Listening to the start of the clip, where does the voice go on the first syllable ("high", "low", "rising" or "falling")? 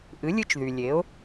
rising